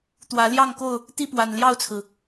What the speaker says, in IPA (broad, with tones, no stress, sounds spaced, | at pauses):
t̪ w ä˨˦ l j ɑ˥˨ ŋ k o˥˨ ʊ̯ | t̪ i˥˨ p w a˨˩ n l j ɑ˥˨ ʊ̯ t͡sʰ ɹ̩˩